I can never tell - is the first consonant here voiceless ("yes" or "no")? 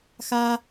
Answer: yes